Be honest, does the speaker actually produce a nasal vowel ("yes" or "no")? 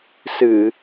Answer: no